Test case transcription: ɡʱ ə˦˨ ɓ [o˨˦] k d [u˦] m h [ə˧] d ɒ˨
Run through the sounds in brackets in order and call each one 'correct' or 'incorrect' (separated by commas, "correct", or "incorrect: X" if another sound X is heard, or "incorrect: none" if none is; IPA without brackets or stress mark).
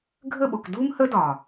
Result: incorrect: o˨, correct, incorrect: ə˦